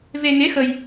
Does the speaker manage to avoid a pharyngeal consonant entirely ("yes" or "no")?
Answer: yes